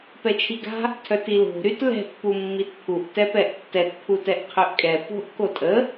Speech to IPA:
p ɛ t͡ʃʰ i ɡ a̤ | tʰ œ t i l o̤ ɾ y t l ɛ̤ t p u mː i t pʰ u ʔ t ɛ p ɛ ʔ tː ɛ t pʰ u t ɛ ʔ qʰ ø ʔ kʼ ɛ p o̤ ʔ k o tʼ ə

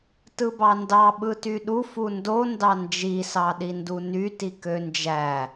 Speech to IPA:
t ɯ b ɑ n d ɑ ɓ ɯ t y ɗ u f u n d o n d ɑ n d͡ʒ i s ɑ ɗ i n d u n y t i k ø n d͡ʒ æ

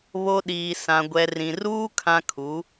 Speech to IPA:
β o˨ ɗ iː˨ s ã˨ ɡʷ ɛ˨ r ĩ˨ r uː˦ kʰ ã˦ kʰ u˨˦

